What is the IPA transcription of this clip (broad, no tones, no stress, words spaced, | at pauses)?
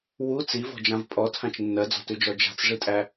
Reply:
wu t͡sivɔ̤d͡ʒãv pʼɔtʰãt͡ʃ nːɜd͡zɔ̤tʉd͡ʒɔ d͡ʒa̤t͡sʐitʼæ